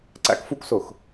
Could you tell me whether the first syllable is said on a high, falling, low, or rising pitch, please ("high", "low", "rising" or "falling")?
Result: high